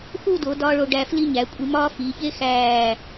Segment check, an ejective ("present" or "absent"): present